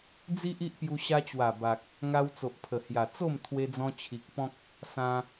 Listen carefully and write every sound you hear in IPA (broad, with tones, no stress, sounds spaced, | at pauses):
d͡z i˦ ʔ i˦ ʔ p j u˧ ɕ a˧ t͡ɕ w a˨˩ b a˨ k̚ | ŋ a˧ w t͡s o˨ ʔ pʰ ə˨˩ h j a˨˩ t͡s o˥˧ m t̪ʰ w e˧ d͡z ɔ̃˧ t͡ɕʰ i˨ k̚ p ɔ̃˦ k̚ | s ã˧